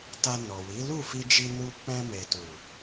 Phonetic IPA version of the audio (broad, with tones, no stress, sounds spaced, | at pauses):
t a˧ n ɔ˨ w i˨˦ l u˦˨ f i˧ d͡ʒ i˧ n u˧ k͡p ɛ̃˧ m e˨ t u˨